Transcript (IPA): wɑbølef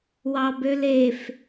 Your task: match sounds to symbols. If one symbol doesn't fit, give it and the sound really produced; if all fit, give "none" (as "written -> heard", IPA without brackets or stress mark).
none